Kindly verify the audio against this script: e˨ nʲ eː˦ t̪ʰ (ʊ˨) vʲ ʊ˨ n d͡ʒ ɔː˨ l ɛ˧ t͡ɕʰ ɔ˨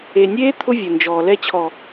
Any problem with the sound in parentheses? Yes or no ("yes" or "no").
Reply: yes